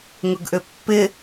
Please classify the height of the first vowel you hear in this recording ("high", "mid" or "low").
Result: high